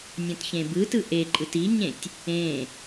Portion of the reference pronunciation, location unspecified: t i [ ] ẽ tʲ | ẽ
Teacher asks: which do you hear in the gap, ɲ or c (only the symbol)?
ɲ